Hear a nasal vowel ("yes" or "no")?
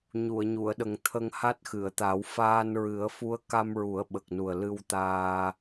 no